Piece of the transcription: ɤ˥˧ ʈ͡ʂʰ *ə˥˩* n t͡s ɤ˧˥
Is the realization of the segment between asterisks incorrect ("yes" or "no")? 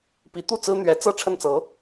no